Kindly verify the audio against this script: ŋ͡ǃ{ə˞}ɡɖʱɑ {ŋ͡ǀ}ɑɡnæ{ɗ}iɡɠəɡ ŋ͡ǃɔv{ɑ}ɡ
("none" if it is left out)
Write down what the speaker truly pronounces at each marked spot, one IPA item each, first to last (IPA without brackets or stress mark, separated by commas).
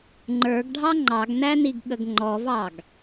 ə˞, ŋ͡ǃ, n, ɑ